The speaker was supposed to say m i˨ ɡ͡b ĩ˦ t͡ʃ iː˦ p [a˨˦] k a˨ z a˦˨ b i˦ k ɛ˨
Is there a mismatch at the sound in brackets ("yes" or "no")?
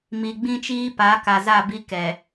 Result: no